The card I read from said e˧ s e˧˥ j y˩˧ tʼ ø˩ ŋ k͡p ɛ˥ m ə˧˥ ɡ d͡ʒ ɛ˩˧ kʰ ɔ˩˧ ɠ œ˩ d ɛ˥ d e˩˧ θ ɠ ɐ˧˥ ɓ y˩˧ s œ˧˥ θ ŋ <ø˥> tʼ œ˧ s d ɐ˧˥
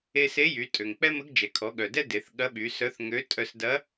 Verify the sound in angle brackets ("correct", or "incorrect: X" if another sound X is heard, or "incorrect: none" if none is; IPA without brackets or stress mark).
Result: incorrect: ø˧˥